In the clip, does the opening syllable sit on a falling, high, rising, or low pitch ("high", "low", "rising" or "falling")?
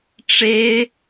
high